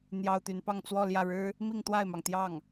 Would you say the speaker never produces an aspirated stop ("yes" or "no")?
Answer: yes